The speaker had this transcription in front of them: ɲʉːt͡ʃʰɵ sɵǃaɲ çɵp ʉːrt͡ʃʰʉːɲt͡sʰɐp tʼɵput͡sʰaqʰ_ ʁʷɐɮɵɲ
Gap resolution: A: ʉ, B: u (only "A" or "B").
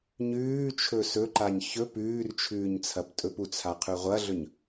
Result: A